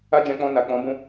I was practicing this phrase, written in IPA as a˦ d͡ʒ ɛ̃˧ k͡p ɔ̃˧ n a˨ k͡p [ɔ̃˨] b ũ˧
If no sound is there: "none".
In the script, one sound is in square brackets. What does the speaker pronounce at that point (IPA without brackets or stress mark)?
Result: ɔ̃˨˦